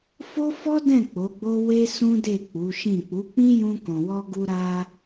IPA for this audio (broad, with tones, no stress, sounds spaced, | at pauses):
f o˦ f ɔ˦ d ɛ̃˦˨ k͡p o˨˦ ɡ͡b o˦ w e˦ s ũ˦ d e˦˨ k͡p u˨˦ ʃ ĩ˦˨ k͡p u˨˦ k͡p ĩ˦ j ũ˧ k ɔ̃˨ w ɔ˧ ɡ u˧ ɾ a˧